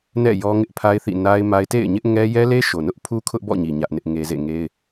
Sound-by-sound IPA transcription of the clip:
nɛ̰˦˨ jɔ˦ŋɪ˦ʔpʰa˦ɪ̯θḭ˦˨ na˦ɪ̯ma˦ɪ̯ tḛ˦˨ɪ̯ɲɪ˦ʔŋɛ˦ jɛ˦le˦ʃo˨nʊ˦ʔ pʰu˦kʰʊ˦ʔbɔ̰˦˨ɲi˨ ɲä˦ʔnɪ˦ʔŋe˦ zḛ˦˨ŋe˦ɪ̯

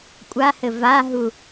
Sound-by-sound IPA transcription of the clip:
kʷʼahɘ vaɦu

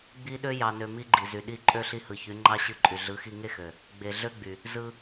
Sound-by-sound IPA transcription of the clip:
ɡ͡bi˦ɗø˦ jɑ˧nø˧mi˦ɡ͡ǃi˨ zy˨ɗi˦˨ǃʼø˦ ɬi˧hɯ˨ çy˨˦ŋ͡ǃɑ˦ɕɯ˦˨ǃʼy˨ ɮɯ˨˦xi˧ŋe˦xø˨ | ɡ͡be˨ ɮø˦ɡ͡by˨ | zɯ˧

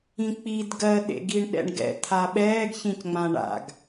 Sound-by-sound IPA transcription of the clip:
ĩk͡pid ɡɜɗḛɡiɳ ɗɛ̰ɳɡɛ̰ t̪ʰaɓɛːɡçĩcŋ͡mã ɳa̰ɡ

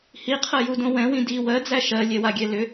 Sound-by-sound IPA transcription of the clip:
hiqʰɜjudõ wɛ̃wĩ di wɜd͡zæ ʃɜlʲɛwaɡʲɛ lʏ

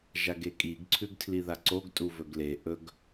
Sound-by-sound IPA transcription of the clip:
ʒaɡekʼiɡ ǀʰʉɡtʰliðaǀoɡ tʼuvɵɡle ʔɵɡ

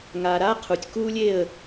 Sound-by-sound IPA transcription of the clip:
ŋa˨ɾa˦qʰu˨tʲ ku˦lʲe˦˨ə̯

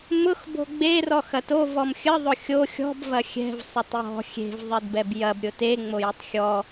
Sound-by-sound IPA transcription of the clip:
mʊx bo̤ɡ͡be rɔxɐto vɔmxʲə ðˤʊxʲo xʲɔ̤b vɐxʲɛ̤v sˤʊtˤjɔ̤ xʲe̤v ðˤedbɛbjɐb ɾʲʊte ŋ͡mojətˤxʲɔ

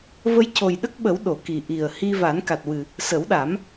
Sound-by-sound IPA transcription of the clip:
və˧jco˨˩jɗə˦˥k̚ɓə˨˩˦w ɗo˨˩˨ki˨˩ ʔi˨˩ə̯hi˧ va˨˩˦nka˨˩t̚wɨ˨˩ | sə˨˩˦wɗa˨˩˦m

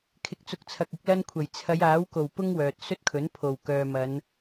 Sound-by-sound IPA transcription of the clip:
kʰɪ˨k̚t͡sʊ˨k̚t͡sʰɐ˨k̚ ɪ˨˥k̚lɐ˥nkʷʰɐ˨˩j t͡sʰɐ˨˧jaː˨˥wko˨˩w pʊ˥ŋwœː˨t̚ sɵ˥t̚kʰɵ˨˥npʰo˨˩wkœː˨ mɐ˨˧n

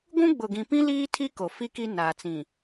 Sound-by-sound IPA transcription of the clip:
ɡʷũ˦ɡ͡bʊ˨ɡĩ˨pĩ˦ liː˦tʰi˦ ko˨ fi˦ki˦ naː˨t͡sĩ˨

